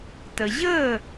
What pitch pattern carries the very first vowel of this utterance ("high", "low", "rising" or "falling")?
high